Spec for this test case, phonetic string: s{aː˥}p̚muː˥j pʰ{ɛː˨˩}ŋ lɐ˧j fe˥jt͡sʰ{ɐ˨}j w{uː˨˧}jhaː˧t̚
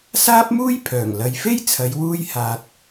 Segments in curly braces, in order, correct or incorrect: correct, incorrect, incorrect, incorrect

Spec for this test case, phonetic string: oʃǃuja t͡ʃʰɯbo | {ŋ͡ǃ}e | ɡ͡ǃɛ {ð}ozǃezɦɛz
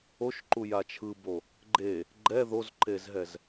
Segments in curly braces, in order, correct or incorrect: incorrect, correct

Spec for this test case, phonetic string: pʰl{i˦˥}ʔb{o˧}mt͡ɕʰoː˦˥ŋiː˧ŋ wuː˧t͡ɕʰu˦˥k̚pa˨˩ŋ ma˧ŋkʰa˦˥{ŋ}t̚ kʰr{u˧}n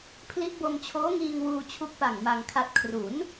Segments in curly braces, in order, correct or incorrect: correct, correct, incorrect, incorrect

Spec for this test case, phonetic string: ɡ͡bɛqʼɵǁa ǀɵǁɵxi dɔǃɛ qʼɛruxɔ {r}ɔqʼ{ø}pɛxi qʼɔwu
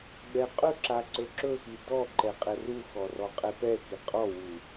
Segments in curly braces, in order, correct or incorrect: correct, incorrect

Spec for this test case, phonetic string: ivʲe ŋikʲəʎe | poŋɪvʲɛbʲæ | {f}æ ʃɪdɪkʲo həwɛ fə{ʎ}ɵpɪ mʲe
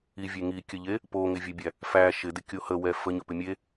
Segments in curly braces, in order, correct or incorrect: correct, incorrect

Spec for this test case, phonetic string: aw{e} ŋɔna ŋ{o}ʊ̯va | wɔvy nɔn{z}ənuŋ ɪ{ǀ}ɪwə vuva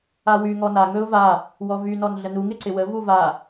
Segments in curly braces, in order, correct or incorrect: incorrect, incorrect, incorrect, correct

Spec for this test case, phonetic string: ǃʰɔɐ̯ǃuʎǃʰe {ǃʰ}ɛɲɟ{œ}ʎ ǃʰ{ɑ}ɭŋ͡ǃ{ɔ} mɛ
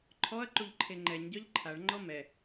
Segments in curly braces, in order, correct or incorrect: incorrect, correct, incorrect, correct

